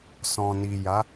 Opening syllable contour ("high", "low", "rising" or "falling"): low